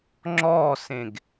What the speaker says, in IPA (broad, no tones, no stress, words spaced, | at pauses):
ŋ͡ǁɔsẽɡ